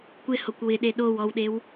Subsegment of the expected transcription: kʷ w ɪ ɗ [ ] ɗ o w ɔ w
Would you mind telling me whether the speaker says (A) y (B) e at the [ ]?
B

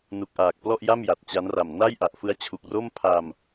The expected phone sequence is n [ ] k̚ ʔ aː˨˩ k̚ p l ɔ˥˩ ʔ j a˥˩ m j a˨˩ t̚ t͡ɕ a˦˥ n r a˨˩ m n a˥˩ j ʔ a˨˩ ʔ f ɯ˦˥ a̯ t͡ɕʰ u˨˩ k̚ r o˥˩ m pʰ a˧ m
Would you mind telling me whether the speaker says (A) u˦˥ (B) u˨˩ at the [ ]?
B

